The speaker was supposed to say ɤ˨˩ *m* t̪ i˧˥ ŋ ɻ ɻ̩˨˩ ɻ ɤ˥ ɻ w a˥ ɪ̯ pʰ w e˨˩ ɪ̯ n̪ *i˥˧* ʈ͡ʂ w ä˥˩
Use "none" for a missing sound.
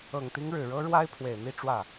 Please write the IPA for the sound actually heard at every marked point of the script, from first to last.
ŋ, i˥˧

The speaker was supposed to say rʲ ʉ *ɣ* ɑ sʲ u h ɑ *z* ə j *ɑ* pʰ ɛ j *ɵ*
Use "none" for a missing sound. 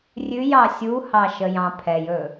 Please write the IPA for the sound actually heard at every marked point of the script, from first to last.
j, ʃ, ɑ̃, ɵ

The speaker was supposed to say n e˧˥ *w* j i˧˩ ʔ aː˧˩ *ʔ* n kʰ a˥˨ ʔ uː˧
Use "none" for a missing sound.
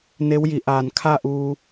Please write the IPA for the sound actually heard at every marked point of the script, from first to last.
w, none

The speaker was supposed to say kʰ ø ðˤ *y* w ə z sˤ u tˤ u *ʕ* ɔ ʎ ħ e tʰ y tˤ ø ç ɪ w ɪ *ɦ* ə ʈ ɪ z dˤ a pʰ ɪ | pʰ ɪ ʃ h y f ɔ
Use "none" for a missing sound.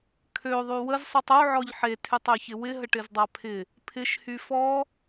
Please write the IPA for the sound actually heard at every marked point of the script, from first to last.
y, ʕ, ɦ

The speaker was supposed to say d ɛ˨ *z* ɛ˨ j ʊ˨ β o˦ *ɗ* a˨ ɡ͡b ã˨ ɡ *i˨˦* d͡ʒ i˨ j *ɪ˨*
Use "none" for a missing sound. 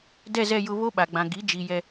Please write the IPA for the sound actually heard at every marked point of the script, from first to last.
z, ɓ, i˨˦, ɛ˨

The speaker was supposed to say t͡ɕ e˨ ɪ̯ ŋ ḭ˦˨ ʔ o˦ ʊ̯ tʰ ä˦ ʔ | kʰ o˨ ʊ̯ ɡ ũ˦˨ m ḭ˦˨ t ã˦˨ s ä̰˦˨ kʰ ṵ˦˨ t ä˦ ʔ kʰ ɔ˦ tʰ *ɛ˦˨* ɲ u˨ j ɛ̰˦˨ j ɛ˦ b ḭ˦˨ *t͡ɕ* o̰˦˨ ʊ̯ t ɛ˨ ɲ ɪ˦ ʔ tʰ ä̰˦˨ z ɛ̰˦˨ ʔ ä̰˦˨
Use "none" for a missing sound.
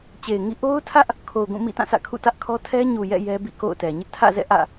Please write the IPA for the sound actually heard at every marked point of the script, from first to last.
ɛ˦, k

